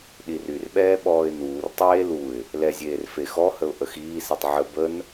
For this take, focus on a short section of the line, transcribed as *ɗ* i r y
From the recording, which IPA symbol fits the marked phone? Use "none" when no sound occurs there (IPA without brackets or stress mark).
ɗ